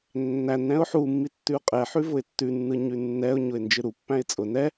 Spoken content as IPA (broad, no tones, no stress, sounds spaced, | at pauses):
nː æ n ɾ ɛ̃ ʊ̯ ħ u mː i tː ʉ ʊ̯ qʼ ɛ ħ ʉ v ʊ ɪ̯ tː ʉ nː ɯ ɲ ʉ nː ɛ ʊ̯ ɲ ʊ ɪ̯ n d͡ʒ ɯ ɾ u pː æ̃ ɪ̯ t͡sʼ ʊ n ɛ